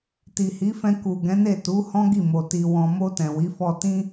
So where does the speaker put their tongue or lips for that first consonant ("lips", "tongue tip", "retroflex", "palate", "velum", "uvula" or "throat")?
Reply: tongue tip